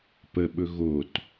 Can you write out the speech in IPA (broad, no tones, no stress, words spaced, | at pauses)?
pəɓɵ ɣot